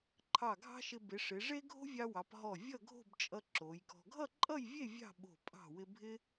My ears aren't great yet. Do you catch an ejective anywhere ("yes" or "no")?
yes